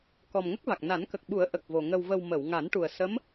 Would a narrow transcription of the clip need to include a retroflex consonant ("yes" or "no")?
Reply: yes